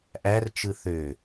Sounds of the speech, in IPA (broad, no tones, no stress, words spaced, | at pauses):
ʔært͡ʃɯ θø